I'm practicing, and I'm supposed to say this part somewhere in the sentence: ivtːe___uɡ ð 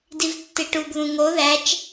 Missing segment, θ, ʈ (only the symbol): ʈ